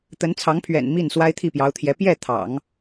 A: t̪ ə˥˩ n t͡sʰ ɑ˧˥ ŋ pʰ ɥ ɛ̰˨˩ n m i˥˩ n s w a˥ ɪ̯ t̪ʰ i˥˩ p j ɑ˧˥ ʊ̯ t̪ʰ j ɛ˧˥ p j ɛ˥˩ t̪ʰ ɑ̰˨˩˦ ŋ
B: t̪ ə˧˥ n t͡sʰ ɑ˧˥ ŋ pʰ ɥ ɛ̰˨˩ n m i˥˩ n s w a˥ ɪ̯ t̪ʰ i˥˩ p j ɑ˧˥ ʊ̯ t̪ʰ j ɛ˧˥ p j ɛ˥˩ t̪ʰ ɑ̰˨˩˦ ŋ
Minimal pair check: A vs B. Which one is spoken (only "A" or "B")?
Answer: B